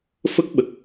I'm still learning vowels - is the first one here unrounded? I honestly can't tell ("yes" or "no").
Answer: yes